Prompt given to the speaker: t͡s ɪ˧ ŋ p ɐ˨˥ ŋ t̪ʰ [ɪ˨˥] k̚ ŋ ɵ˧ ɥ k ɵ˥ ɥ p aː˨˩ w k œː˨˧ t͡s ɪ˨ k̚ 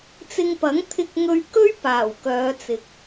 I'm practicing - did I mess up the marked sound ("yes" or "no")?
yes